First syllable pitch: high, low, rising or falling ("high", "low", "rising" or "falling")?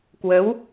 rising